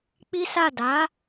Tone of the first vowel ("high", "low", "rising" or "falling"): high